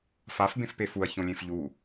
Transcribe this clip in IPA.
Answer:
f a f b ẽ f p e f u ɐ̯ ç õ lʲ ẽ f ʎ u

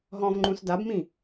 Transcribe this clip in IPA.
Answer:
ɦ ɔ̃ v ŋ͡ǃ ũ s d a b m ĩ

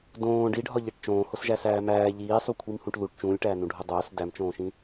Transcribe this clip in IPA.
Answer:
d õː ɖ i ɖʱ ɒ ʎ e ʈ t͡ʃ õː h o s ʒ æ s æː m æː ʎ iː sˤ u kʷʰ i m h ũ ʈ l u ʈ t͡ʃ ũː lʲ ʈ æː n ũ ɖʱ o dˤ oː s d æ m t͡ʃ õː ʃ ĩ

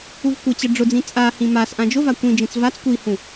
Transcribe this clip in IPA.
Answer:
u v kʷ ə t͡ɕ ə ɖ͡ʐ ʊ d͡z ĩ t͡sʼ a h ĩ m a s ʔ ã d͡ʒ ʊ v a kʷ ĩ d͡ʒ ĩ t͡s v a t͡s kʷ i h ũ

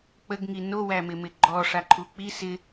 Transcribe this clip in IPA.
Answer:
k͡p ə ɡ ŋ i n o w æ m ɪ m ɪ ɡ͡ǃ ɔ ʂ a ǃʰ u k͡p i s ɪ

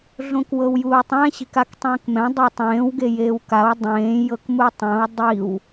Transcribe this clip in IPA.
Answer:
ɮ õ k w ɤ w j uː tˤ ɛ̃ ɕ i̤ k a k tˤ ẽː k m ɛ̃ dˤ e tˤ ẽː w ɡ e j eː w k a w dˤ ẽː j ɤ k m u tˤ ɛ̃ w dˤ i w

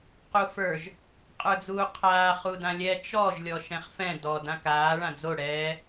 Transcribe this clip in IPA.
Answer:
q u f ə˞ ʒ | qʼ ə˞ d͡z uː qʰ aː χ u d ã lʲ ɛ t͡ʃ ɔ ʒ lʲ ɔ ʃ ɛ̃ χ f ɛ̃ d ɔ d ã k aː ɭ ã d͡z o ɽ ɛː

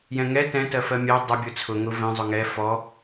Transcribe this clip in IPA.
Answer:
j ɛ̃ ŋ ɛ t ɛ̃ t ɜ f ɜ mʲ ɜ dˤ ʊ bʲ ʊ t͡sʰ ʊ ŋ ʊ v ɛ̃ zˤ ʊ ŋ ɛ f ɔ

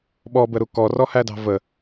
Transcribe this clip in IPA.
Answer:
ɓ ɔ b ə ɾ u k ɔ r ɔ h æ d ɑ̤ v ə

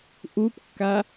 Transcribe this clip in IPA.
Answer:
ʔ u p kː a

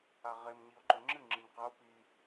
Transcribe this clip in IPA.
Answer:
a ʁ e m ɲ i o̯ ǃ ɵ ŋ͡ǁ ɨ ŋ͡ǁ ɨ ɲ q ɐ o̯ p i

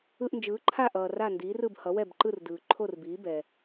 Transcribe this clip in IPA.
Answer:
ɯ˧ ʔ n d͡ʒ ɯː˩˥ ǃʰ a˥˩ ʔ ʌː˩ r a˥˩ n d iː˩˥ r ɯ˥˩ b h ʌ˩˥ w ɛ˥˩ b ǃ ɯ˥˩ r d ɯː˩ ǃʰ o˥˩ r b iː˩˥ b ɛ˩

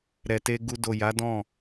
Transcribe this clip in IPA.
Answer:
ɾ ɛ˨ t e˧ ɡ u˧ d o˨ j a˨˦ d ɔ̃˦˨

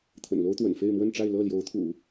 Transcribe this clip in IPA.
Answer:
t̪ʰ ə̰˨˩ n l o˥ ʊ̯ t̪ w ə̰˨˩ n f e˥˧ ɪ̯ m w ə˥˧ n ʈ͡ʂ a˥˧ ɪ̯ l ɤ˥˩ l j o˧˥ ʊ̯ t̪ʰ ṵ˨˩˦

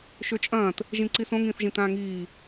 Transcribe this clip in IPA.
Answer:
ʃ ø t͡ʃʼ ɐ̃ː t | ʒ ĩ ǀ i s õ ŋ ĩː θ ʒ ĩ t ãː ŋ iː

